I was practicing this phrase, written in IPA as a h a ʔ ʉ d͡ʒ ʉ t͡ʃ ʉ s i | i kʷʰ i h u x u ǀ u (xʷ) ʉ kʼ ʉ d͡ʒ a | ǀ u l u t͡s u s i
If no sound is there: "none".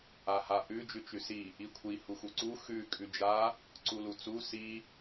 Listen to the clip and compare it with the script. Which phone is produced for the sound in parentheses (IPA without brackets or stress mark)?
x